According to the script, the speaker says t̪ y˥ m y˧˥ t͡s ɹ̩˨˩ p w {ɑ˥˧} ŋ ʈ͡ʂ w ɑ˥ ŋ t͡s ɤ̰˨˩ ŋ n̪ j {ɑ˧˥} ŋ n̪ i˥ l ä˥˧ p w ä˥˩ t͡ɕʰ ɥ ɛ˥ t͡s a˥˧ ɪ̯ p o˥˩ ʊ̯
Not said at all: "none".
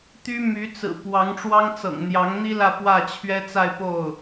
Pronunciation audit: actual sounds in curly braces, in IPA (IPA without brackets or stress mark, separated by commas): ɑ˧˥, ɑ˧˥